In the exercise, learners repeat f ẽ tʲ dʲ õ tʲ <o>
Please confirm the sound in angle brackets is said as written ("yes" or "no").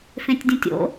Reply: no